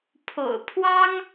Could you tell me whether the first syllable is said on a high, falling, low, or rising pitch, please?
low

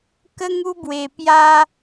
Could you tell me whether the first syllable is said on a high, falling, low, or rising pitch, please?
high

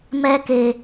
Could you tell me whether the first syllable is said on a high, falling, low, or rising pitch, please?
high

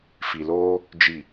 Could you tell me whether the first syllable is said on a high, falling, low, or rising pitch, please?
low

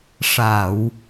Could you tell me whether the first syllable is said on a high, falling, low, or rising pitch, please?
low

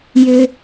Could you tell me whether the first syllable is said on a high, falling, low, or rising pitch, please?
low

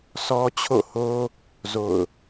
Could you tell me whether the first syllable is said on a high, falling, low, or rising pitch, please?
high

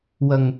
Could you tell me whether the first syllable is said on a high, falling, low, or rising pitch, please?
low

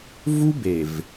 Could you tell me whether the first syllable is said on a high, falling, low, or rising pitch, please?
high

